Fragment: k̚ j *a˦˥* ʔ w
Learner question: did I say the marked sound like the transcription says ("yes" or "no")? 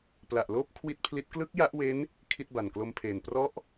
yes